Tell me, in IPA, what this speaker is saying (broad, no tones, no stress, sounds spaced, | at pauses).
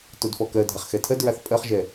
t o d f ɔ k ɜ dʱ a χ x ɛ tʰ ɜ d ɹ a θ pʼ ɜ χ ʒ ɛ